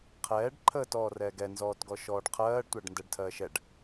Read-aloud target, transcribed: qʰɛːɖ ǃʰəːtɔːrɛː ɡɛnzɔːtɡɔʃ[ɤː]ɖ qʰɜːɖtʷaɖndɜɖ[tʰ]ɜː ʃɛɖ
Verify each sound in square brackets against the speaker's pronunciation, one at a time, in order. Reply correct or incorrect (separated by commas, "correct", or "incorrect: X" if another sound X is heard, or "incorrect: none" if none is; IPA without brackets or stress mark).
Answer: incorrect: ɔː, correct